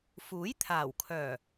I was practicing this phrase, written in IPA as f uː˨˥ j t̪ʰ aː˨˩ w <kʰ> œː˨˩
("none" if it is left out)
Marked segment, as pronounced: kʰ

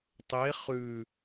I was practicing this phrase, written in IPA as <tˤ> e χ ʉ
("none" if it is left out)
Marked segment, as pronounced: tˤ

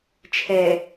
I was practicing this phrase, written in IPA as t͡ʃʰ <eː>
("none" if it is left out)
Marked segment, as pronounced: ɛː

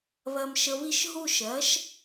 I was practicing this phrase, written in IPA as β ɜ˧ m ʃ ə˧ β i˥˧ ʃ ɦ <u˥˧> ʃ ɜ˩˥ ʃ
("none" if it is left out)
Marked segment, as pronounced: u˥˧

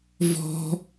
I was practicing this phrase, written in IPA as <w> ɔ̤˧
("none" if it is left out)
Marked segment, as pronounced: v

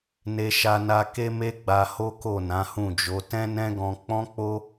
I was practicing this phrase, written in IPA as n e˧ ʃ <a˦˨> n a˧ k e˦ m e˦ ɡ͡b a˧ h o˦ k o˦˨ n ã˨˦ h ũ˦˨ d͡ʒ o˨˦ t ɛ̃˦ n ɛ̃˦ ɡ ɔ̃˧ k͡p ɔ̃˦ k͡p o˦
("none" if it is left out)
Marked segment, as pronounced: a˧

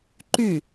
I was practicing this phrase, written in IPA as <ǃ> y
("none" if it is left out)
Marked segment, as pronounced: ǃ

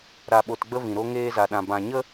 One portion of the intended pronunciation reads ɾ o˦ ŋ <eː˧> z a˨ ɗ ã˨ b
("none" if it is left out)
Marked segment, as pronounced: eː˧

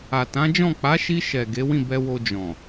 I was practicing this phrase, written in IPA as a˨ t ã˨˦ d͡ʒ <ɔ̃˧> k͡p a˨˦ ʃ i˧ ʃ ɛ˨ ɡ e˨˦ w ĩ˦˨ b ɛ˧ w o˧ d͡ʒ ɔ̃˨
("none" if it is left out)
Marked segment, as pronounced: ɔ̃˦˨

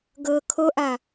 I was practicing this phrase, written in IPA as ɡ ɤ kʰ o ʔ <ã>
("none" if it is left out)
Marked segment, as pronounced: a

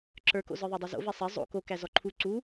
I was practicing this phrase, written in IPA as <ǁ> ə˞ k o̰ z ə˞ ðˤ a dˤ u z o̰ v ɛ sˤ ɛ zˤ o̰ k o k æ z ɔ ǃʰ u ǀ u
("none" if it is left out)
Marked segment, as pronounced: ǁ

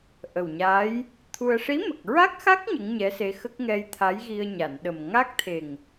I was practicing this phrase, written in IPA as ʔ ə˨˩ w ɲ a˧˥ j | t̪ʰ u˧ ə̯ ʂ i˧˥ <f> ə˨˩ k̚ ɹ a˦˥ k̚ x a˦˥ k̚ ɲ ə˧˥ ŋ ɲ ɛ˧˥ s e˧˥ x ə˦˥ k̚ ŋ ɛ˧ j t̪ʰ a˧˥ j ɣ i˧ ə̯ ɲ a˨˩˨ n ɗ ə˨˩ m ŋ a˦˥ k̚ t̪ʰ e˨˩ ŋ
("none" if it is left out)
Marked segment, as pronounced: m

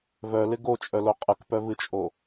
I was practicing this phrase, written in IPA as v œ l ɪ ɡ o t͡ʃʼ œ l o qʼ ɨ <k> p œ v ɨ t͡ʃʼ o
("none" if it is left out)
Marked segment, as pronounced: k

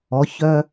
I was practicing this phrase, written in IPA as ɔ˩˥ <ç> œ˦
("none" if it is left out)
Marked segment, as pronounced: ç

